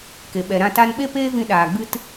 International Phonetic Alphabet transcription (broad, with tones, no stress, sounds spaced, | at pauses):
k e˨ ɓ ɛ˨ ɾ ã˧ t a˧ n ɓ e˦ p eː˦ v ĩ˧ ɗ aː˨ ɡ͡b ɨ˦ t